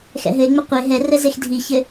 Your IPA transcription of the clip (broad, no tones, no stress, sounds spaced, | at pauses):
x ɛ̰ ɦ ɘ e̯ ŋ͡m ɛ qʷ e ɦ ɛ r ɛ z e x dʱ i ç ɘ